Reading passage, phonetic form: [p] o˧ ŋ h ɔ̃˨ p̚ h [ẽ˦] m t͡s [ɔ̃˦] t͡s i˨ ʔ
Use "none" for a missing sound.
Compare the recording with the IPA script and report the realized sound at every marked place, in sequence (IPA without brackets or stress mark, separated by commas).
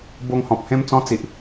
b, ẽ˦, ɔ̃˦